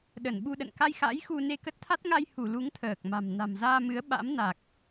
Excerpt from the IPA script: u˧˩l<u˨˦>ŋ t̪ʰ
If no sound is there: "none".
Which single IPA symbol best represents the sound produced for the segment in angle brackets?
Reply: u˨˦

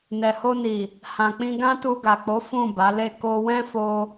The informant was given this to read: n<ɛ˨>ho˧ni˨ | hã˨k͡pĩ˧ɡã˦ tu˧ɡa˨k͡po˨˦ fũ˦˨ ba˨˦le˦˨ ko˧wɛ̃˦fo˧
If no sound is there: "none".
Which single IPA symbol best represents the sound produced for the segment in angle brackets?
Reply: ɛ˨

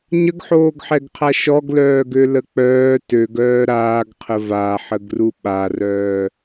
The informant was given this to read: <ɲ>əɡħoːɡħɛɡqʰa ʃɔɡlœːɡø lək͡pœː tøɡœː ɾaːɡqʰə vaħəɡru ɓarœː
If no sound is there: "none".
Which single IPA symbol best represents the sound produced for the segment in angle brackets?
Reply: ɲ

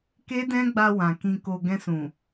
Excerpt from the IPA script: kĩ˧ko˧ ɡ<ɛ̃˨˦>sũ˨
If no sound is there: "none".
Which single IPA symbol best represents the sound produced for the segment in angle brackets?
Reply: ɛ̃˧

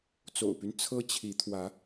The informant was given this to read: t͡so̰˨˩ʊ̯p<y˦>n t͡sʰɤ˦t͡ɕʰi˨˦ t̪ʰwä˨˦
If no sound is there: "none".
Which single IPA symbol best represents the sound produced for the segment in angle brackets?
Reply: y˦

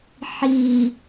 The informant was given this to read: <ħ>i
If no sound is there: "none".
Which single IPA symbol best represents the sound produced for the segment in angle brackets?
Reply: ħ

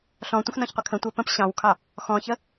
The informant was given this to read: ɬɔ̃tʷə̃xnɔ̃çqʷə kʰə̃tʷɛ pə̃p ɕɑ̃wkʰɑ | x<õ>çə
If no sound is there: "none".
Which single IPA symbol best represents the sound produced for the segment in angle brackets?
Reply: ɔ̃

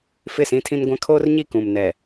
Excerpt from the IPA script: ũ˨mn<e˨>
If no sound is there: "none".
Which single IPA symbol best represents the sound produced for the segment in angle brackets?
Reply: ɛ˨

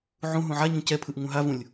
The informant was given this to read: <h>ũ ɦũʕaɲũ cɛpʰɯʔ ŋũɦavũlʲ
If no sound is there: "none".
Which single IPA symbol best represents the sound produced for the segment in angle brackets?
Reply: ʕ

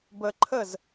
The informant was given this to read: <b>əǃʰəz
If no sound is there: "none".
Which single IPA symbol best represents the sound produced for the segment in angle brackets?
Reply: b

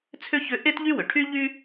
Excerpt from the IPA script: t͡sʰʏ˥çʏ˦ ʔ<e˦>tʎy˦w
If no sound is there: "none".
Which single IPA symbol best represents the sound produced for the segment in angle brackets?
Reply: e˦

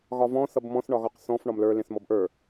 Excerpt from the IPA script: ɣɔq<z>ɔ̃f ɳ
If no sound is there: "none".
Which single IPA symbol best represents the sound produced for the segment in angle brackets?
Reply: θ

